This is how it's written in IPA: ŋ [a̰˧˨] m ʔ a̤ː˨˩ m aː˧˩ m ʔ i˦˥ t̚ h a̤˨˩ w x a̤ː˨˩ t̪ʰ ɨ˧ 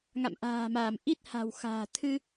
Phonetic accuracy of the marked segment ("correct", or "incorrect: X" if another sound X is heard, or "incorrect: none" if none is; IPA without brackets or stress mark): correct